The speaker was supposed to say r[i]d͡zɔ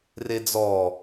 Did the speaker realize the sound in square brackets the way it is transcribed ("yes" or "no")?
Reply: no